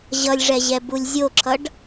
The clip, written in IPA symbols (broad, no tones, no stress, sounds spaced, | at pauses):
ʑ ʌ lʲ ʐ ɛ ʑ ɛ b u lʲ zʲ o ǁʰ ʌ ɖ